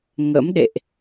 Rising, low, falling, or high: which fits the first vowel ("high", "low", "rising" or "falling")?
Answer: rising